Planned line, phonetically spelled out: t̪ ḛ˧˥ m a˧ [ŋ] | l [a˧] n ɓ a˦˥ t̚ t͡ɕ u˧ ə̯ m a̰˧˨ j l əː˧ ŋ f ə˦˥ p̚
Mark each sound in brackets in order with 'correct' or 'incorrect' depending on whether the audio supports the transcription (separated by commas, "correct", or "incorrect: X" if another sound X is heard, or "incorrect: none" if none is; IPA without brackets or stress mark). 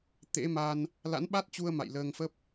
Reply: incorrect: n, incorrect: a̰˧˥